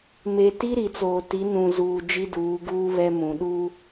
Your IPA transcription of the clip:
m e˨ t i˦ ɾ i˨ t͡s oː˨ t i˨˦ n ũ˨ z uː˨ d͡ʒ i˦ d uː˨˦ ɡ uː˦ β ɛ˦ m ũ˨ ɗ uː˦

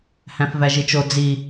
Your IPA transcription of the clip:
h æ̃ f v æ ʒ i t͡ʃ o d͡z i

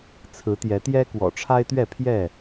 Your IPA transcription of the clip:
t͡sʰ ɹ̩˨˦ t̪ j ɛ˨˦ t̪ j ɛ˦ k w ɔ̰˨˩ ʈ͡ʂʰ a˦ ɪ̯ t̪ ɥ ɛ˥˨ pʰ j ɛ˥˨

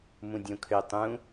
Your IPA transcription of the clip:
m ũ dʲ õ kʰ ø tˤ ũ

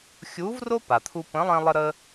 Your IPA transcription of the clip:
xʲ u˧˥ v r o˥ p a˩ t̪ʰ u˧ p ə̃˧˥ lˠ ɛ̃˥ lˠ ə˥ ɾ ə˥

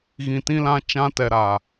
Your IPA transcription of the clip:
ɣ ĩ˨ t ĩ˦ l ã˦ t͡ʃ ã˦ t ɛ˨ ɾ aː˨

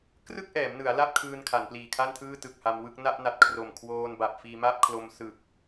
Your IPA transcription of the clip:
k r ɯ˥˩ k̚ ʔ ɛː˩˦ m n ɯ˩˦ a̯ l a˥˩ p̚ kʰ ɯː˧ n kʰ a˩˦ n p l iː˨˩ kʰ a˥˩ n tʰ ɯː˥˩ t ɯ˨˩ k̚ h a˧ m w ɯ˥˩ k̚ n a˥˩ ʔ n a˨˩ t̚ kʰ r o˨˩ m kʰ w oː˧ n b a˨˩ p̚ f iː˧ m a˥˩ p̚ kʰ l o˧ m s ɯ˨˩ k̚

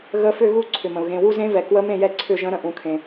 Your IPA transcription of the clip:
ɣ ə˧˥ f ʏ˥˧ ɣ u˥˧ ǀʰ ʏ˩ m ə̃˩ ʊ̯ ɣ ẽ˩˧˩ w u˥˧ z ẽ˧˥ v ɛ˩ k w ə˧˥ m ẽ˥˩ j ɛ˥˩ ǀʰ ʏ˥˩ ʒ ə̃˧˥ ɾ ə̃˩˧ ʔ ũ˩ kʰ ẽ˩

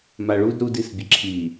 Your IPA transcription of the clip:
m a ɭ u d ɾ u d i s bʲ ə ǁʰ i

